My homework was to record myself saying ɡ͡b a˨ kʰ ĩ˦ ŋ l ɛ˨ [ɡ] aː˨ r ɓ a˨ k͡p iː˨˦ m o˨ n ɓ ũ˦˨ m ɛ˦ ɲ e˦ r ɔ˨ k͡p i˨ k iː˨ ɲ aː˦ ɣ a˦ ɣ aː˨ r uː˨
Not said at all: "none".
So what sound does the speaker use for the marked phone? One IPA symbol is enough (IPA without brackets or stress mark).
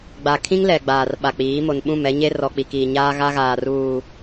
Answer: ɡ͡b